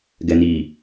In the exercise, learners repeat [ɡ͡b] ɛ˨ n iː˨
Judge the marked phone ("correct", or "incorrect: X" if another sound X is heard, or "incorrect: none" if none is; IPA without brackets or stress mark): incorrect: ɡ